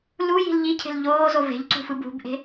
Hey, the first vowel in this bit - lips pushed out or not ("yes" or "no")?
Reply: yes